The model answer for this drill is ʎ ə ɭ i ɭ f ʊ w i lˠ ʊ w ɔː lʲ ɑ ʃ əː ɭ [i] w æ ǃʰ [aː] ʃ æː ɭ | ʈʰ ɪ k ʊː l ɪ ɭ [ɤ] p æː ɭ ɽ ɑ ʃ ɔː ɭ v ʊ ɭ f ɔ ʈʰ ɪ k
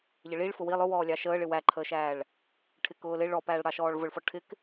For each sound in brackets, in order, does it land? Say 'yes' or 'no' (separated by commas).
no, no, no